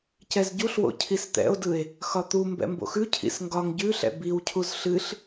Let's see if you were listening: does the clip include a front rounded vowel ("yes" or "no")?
no